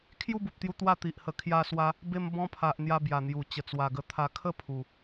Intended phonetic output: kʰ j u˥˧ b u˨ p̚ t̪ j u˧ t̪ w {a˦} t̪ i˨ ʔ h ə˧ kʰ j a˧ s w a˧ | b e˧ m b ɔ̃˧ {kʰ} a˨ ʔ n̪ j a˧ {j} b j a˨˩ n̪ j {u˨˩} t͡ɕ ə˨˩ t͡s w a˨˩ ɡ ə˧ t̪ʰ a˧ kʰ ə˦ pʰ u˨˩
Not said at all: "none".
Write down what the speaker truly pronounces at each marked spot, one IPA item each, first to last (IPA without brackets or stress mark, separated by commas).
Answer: a˥˧, pʰ, none, u˨˩